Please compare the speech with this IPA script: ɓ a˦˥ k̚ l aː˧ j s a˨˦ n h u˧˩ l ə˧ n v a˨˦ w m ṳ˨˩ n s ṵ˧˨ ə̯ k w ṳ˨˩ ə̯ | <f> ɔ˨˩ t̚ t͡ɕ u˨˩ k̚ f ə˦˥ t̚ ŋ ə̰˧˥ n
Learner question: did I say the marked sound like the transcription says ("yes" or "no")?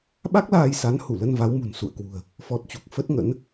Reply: yes